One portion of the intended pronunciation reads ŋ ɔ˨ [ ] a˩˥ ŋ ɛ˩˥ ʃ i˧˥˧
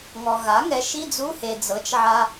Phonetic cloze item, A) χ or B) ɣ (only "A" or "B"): B